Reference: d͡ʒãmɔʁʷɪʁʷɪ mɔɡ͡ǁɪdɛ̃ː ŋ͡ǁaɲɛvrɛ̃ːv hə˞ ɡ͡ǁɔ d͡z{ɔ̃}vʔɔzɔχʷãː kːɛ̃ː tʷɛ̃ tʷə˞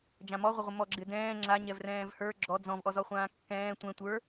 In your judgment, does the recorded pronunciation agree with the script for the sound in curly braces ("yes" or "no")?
yes